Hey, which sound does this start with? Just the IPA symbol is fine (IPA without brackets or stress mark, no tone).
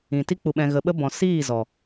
ĩ